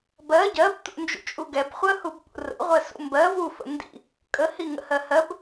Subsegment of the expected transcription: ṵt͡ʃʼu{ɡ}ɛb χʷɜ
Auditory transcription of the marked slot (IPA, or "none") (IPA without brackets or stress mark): ɡ